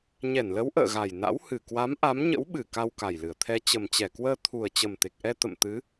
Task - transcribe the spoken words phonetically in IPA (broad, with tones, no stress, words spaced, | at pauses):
ɲɛ˧˩nlə˨˦w ʔə̰ː˧˨ɣa˨˩jna̰˧˥w hɨ˧˩kwa˨˦m ʔa˨˦mɲə̰˧˥wɓɨ˧˩ ka˧wka˨˩jlɨ˧˩ə̯t̪ʰɛ˧ t͡ɕə˨˩mt͡ɕɛ˧˩kwəː˧ t̪ʰu˨˩ə̯t͡ɕə˨˩mt̪e˨˩k̚ʔɛ˧ t̪ə̰˧˨mt̪ɨ˨˦